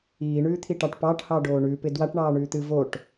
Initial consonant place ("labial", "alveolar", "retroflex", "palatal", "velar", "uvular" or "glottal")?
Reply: retroflex